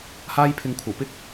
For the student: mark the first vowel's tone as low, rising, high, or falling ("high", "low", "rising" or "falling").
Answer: high